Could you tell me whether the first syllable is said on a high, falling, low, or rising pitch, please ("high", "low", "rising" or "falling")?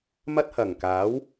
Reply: high